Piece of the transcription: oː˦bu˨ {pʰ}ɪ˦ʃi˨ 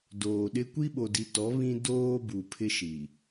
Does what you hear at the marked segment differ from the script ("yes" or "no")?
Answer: no